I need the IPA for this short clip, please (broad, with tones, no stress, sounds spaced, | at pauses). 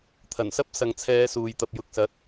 t̪ʰ ɐ˨˩ n s ɐ˥ p̚ s ɐ˨ ŋ t͡sʰ ɛː˨˧ s uː˨ j t̪ ɐ˨ p̚ j ʊ˨ k̚ s ɐ˨˥ t̚